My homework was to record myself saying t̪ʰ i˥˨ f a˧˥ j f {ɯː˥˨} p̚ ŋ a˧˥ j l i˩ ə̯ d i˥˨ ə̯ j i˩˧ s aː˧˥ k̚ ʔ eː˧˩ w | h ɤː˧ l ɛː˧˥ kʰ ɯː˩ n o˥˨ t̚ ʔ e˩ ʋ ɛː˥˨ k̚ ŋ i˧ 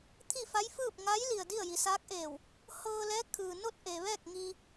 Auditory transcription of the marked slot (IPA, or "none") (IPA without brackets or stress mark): ɯː˥˨